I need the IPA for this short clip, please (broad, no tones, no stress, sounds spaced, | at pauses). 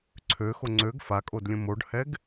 ǀʰ ø x o ŋ͡ǀ ø ɡ f a kʼ o d lʲ ə̃ m o ɖ h ɛ ɡ